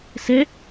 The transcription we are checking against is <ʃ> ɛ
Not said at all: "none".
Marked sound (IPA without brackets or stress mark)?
s